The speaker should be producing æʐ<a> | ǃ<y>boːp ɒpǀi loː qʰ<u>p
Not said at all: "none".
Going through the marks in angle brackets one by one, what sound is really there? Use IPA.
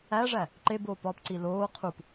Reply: æ, e, u

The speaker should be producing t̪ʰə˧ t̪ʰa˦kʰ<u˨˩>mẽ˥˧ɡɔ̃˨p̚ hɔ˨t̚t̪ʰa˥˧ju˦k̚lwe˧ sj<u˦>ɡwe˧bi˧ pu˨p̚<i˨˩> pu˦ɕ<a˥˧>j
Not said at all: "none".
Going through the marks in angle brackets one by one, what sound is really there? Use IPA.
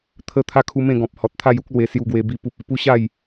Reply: u˧, u˧, i˨˩, a˥˧

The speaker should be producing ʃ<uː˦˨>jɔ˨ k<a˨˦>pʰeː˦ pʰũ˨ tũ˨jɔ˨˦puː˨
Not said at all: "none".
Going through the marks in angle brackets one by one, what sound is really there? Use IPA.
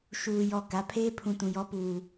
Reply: uː˨, a˨˦

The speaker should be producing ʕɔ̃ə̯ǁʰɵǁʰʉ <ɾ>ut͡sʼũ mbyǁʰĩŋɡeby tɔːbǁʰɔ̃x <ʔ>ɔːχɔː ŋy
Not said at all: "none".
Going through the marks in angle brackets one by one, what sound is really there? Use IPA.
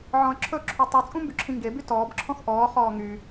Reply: tˤ, ʔ

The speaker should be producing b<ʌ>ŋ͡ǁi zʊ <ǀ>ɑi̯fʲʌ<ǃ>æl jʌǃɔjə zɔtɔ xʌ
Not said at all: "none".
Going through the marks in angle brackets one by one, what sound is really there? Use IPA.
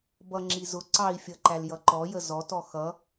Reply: ʌ, ǀ, ǃ

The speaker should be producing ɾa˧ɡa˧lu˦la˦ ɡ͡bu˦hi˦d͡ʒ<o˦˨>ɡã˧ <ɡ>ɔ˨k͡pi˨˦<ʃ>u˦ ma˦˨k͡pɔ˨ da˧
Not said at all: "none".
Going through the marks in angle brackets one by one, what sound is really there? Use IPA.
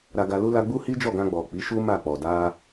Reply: ɔ˦˨, ɡ͡b, ʃ

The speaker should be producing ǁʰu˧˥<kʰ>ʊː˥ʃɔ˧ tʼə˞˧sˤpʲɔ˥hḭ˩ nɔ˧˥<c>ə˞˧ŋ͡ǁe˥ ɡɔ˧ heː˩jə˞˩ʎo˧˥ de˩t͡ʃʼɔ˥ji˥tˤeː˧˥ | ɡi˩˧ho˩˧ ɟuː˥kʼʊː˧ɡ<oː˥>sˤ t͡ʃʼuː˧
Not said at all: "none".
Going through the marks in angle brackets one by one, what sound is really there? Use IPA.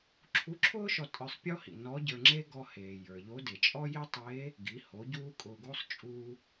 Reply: ǁʰ, ɟ, oː˥

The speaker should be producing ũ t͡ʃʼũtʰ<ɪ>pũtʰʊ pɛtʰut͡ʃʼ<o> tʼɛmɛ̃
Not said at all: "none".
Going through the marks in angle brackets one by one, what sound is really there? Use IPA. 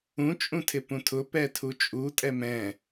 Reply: ɪ, u

